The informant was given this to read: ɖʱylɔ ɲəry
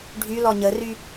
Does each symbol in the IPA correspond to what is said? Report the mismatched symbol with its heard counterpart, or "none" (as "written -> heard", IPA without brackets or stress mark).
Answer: none